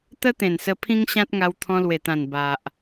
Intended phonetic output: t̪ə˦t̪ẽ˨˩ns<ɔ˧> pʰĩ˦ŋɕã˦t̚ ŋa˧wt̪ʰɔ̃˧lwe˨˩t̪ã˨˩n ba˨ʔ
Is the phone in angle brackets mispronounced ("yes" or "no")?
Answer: yes